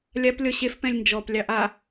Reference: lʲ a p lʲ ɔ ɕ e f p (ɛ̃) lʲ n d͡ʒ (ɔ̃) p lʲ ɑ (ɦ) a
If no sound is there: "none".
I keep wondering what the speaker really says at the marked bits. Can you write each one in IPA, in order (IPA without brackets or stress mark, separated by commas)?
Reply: ɛ̃, ɔ, ʔ